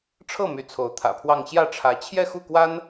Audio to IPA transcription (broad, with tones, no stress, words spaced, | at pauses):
ʈ͡ʂʰɤ˥˩ my˧˥t͡sʰo˧˥ʊ̯t̪ʰä̰˨˩pʰwɑ˥˧ŋ ɕjä˥˩ʈ͡ʂʰä˧˥ t͡ɕʰjɛ˥˧xu˥˩kwa˥n